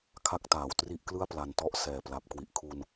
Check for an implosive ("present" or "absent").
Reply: absent